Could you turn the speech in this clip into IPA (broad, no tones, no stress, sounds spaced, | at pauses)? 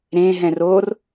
ɾ ẽ ɦ ɛ̃ r o r